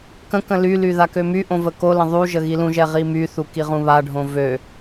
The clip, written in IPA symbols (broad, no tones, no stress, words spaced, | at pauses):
kə̃kə̃ lyly ðakømyʔõ vəkolə̃ ðˤuʒə ɣilũʒɛ ʁimyθu kiʁũβaɖʱõ vø